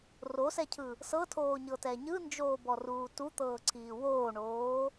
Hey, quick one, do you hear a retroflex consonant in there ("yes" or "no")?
yes